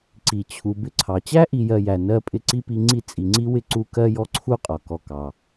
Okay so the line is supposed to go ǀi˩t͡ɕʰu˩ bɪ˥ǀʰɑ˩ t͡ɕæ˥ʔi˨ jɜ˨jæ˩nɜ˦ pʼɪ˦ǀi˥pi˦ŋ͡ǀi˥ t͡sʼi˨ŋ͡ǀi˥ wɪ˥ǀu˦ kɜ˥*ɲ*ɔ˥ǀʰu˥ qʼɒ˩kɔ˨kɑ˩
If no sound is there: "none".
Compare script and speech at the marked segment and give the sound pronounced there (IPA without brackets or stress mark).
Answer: j